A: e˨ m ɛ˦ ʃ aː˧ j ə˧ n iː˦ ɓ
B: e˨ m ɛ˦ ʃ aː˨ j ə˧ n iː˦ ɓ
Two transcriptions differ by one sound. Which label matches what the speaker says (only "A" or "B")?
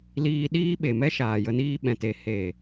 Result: B